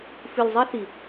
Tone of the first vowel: low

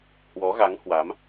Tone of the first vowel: rising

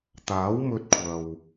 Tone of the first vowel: rising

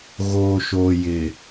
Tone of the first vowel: low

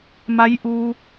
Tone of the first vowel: rising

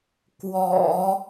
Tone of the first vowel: low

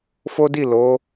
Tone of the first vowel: high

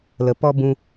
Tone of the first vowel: low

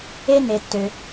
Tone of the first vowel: high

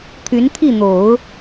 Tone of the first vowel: rising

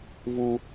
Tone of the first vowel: high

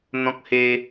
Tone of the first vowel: high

